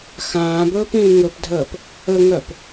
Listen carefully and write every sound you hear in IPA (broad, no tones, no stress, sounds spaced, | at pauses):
x ãː b ɵː p ĩː ŋ ɵ p dʱ əː p | ə ŋ œ p